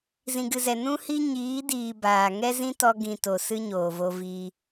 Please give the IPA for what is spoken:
z ĩ˨ ɡ ɨ˨ z ɛ˨ n ũ˦ h i˦ ɲ iː˨˦ d iː˨ b aː˨ ŋ ɛ˦ z ĩ˦ t ɔ˧ ɡ ĩ˨ t o˨ s ɨ˦ ɲ oː˨ v o˧ v iː˧

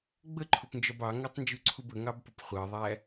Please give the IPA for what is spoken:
ɡ͡b ə ǃʰ ʊ p n d͡ʒ ɒ b ɑ ŋ æ tˤ n d͡ʒ u ǀʰ u b ə ŋ ɑ b p ə p χʷ ɜ ðˤ æ

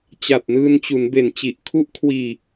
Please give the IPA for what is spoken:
t͡ɕ a˨˩ t̚ n ɯː˧ n t͡ɕ u˩˦ n b e˨˩ n t͡ɕ i˨˩ ʔ kʰ u˦˥ ʔ kʰ w iː˧

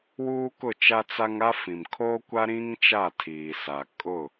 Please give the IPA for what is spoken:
w uː˦ k ʊ˦˨ t͡ʃ a˦ t͡s a˦ ŋ a˦ f ĩ˨ m kʰ o˦ kʷ a˦ ɾ ĩ˦ ŋ t͡ʃ a˦˨ tʰ iː˨ s a˨ kʼ ʊ˦˨

